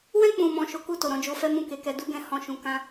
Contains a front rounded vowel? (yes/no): no